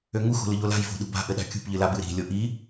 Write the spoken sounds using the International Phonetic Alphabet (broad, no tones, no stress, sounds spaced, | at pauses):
ø ŋ u x o̤ l ɨ ʎ o l a̤ j v o̤ ɗ ṳ b a̤ ʔ ɘ ɗ a̤ kʲ ṳ p ʎ ɨ l a b ɨ ɾ i̤ lʲ o ʔ i